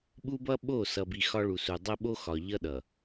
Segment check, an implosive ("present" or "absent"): present